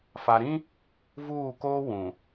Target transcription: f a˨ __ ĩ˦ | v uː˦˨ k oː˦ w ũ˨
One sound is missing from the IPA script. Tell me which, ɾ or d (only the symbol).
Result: ɾ